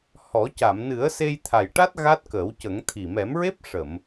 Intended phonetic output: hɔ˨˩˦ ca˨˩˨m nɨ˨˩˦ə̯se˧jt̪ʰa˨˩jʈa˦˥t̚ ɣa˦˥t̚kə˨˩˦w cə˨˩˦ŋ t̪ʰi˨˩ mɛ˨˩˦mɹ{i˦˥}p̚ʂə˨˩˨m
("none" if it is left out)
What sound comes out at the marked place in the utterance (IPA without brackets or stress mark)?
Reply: e˦˥